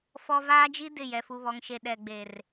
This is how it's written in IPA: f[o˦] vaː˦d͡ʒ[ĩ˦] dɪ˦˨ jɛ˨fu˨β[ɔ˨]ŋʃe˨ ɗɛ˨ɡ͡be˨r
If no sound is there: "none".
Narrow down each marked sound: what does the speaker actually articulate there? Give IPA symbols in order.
ɔ˦, i˦, ɔ˨

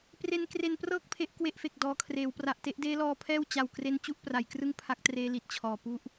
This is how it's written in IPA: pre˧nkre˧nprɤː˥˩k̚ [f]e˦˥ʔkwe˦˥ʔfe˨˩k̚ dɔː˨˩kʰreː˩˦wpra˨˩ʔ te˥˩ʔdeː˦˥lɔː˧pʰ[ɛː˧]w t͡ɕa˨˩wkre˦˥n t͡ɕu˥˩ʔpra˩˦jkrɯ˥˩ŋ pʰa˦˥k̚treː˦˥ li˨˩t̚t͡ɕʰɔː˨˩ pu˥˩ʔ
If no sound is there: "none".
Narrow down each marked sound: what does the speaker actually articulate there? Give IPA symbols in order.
pʰ, ɛː˥˩

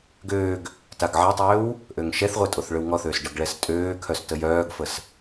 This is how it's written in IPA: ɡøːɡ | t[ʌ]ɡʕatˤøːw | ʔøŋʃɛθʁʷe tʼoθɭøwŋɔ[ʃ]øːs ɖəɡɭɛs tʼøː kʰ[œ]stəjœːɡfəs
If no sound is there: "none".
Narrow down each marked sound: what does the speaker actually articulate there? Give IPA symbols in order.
a, θ, œ

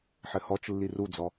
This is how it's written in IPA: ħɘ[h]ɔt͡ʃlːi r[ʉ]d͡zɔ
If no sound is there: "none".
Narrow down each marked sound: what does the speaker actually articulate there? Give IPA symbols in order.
h, u

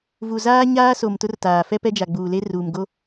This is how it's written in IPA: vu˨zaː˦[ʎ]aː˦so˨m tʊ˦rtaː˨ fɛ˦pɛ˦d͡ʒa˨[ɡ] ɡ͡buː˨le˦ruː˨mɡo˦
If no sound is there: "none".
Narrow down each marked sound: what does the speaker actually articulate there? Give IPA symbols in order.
ɲ, none

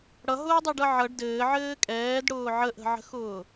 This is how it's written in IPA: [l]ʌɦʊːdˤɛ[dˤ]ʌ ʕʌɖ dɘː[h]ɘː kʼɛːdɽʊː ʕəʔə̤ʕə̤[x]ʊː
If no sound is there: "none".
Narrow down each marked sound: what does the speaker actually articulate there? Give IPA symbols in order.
ɽ, ɖ, ʕ, x

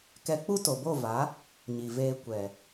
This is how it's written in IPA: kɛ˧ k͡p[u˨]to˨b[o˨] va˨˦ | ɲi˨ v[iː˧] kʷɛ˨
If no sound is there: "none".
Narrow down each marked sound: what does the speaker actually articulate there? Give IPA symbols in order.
u˦, o˦˨, eː˧

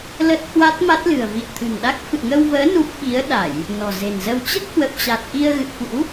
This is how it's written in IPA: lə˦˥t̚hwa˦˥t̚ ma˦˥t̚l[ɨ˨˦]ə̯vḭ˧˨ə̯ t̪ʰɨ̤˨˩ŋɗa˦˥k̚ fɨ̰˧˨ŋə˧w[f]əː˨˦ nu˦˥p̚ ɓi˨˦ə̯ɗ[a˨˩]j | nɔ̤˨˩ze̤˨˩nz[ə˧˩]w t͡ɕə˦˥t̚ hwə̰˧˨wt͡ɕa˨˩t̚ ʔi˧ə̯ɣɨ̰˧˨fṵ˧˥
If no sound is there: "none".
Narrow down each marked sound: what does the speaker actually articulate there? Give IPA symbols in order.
ɨ̤˨˩, v, a˧˩˨, ə˧

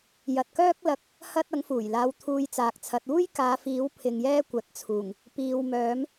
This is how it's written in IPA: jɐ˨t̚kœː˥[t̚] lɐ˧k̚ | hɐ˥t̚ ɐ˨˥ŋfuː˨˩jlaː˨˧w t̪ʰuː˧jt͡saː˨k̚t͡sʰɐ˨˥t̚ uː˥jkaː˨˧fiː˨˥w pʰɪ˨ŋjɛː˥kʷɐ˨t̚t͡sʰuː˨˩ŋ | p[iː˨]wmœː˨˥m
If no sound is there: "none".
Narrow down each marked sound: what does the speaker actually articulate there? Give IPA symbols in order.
k̚, iː˨

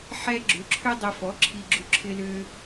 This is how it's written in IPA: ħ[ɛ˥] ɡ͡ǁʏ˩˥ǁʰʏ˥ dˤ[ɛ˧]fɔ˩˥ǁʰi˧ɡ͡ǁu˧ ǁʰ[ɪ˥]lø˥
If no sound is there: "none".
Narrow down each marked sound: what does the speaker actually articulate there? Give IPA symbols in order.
ɛ˥, ɛ˧, ɪ˥

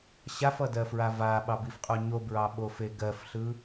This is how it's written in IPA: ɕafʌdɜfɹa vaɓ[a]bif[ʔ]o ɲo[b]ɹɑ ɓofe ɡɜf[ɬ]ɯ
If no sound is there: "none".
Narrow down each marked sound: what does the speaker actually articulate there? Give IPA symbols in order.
ɑ, qʼ, b, ɬ

